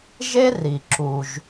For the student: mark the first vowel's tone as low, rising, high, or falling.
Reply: high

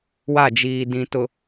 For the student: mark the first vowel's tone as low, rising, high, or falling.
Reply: falling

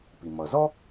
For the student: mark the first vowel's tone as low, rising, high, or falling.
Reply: low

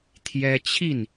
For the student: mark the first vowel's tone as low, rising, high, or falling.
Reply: high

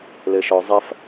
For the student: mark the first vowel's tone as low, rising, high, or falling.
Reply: low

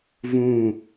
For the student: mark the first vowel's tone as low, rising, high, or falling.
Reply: falling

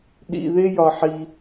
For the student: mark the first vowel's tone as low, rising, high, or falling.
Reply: low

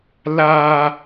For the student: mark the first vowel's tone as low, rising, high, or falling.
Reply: high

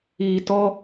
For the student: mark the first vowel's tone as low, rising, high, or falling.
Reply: low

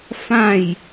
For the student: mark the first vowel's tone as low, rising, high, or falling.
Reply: falling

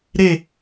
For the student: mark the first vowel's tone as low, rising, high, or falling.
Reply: falling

